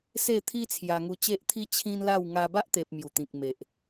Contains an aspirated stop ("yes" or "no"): yes